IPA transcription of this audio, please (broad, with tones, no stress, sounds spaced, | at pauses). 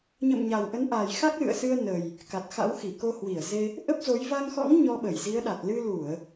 ɲ ə̰˧˨ m ɲ a˨˩ w ʔ ə˨˦ n ʔ a˨˩ j x a˦˥ k̚ l ɨ̰˧˨ ə̯ s ɨ˧ ə̯ n ə˨˩ j | k a˨˩ t̚ x a̰˧˥ w x i˧˩ k o˧ h w i˧˩ ə̯ z e˧ | ʔ ə˦˥ p̚ z o˨˦ j v a˧ ŋ x ɔ̰˧˥ ŋ ɲ ɔ˧ ɓ ə˧˩ j z i˨˦ ə̯ ɗ a˨˩ t̚ l ɨ˧ l u˧˩˨ ə̯